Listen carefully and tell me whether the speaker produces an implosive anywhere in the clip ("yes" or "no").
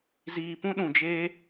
yes